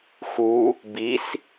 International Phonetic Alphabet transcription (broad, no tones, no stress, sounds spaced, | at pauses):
x u | b i s